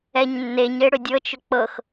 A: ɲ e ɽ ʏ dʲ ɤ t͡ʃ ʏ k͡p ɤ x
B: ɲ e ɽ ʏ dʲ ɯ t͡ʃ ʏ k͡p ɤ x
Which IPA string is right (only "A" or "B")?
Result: A